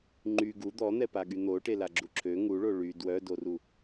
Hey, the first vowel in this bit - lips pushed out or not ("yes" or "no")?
yes